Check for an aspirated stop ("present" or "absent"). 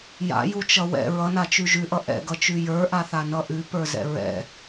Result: absent